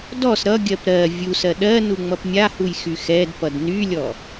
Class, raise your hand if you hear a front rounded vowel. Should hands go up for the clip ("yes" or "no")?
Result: yes